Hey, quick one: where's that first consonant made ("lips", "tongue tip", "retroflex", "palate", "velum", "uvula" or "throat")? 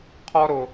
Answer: uvula